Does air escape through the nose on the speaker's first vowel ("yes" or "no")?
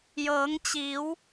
no